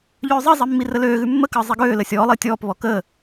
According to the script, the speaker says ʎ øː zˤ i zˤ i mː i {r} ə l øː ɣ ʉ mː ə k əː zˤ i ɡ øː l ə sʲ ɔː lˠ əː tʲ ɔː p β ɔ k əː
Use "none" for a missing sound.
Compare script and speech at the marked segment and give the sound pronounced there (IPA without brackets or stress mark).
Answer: r